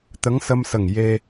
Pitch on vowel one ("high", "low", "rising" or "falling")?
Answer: rising